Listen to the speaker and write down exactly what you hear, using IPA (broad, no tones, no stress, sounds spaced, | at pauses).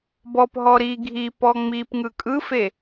b ɔ p ɦ ɔ ɾ i ɡʱ i p ɔ ŋ͡m i p ŋ ɯ kʼ ɯ f e